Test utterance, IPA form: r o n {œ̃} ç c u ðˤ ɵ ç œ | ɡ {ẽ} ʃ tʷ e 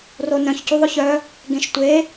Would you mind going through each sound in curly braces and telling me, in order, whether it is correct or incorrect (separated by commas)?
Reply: correct, correct